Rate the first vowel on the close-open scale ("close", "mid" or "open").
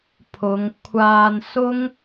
close